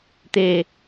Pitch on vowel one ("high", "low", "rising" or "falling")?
low